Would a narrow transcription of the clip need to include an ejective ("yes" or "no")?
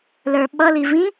no